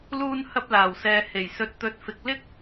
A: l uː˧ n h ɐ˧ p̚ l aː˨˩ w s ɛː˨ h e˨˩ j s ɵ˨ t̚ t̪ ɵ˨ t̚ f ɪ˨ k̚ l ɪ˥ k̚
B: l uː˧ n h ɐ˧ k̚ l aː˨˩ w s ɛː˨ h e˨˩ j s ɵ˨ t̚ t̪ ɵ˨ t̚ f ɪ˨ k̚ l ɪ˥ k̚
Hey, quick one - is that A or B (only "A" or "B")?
A